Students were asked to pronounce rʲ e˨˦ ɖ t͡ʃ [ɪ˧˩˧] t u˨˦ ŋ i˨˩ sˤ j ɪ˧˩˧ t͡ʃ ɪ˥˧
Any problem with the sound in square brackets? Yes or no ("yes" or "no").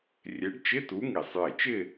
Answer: yes